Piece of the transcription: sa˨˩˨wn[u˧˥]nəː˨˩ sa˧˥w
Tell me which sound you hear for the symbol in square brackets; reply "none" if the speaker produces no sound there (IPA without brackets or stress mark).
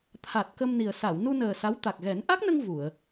u˧